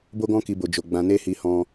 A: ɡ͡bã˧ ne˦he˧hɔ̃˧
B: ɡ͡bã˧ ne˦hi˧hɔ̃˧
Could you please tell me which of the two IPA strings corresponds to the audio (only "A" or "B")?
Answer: B